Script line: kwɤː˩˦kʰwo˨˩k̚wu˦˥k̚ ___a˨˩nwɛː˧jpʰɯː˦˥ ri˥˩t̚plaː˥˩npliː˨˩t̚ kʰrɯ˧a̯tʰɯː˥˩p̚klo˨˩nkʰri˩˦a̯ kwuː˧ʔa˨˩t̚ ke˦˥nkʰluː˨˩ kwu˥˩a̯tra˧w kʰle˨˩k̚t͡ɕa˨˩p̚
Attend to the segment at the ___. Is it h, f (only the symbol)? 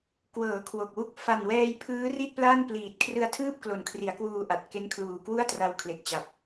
f